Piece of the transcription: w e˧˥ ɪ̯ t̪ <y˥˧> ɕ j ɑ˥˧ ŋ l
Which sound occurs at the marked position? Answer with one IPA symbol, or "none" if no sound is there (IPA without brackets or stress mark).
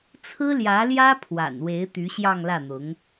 y˧˥